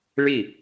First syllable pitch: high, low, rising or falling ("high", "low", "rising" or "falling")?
falling